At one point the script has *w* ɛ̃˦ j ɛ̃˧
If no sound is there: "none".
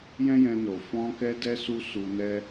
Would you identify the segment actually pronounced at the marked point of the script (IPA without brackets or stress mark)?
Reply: j